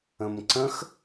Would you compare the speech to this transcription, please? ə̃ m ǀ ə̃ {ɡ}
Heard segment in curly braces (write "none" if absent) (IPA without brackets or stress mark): x